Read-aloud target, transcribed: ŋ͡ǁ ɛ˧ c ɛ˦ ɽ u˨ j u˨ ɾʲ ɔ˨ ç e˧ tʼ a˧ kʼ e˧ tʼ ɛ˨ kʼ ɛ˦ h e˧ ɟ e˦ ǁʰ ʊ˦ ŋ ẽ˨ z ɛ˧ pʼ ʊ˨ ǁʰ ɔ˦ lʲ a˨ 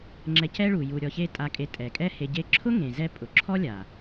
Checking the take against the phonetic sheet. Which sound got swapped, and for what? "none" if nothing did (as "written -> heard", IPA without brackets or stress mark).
ɽ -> ɭ